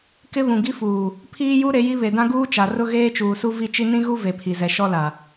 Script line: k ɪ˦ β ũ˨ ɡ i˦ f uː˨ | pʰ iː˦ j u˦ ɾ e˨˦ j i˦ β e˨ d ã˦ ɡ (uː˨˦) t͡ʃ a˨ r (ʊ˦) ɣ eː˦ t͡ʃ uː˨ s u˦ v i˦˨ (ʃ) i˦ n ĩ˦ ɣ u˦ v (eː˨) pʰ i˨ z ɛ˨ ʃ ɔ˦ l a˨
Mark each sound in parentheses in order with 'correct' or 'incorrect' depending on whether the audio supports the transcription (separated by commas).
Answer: incorrect, correct, incorrect, incorrect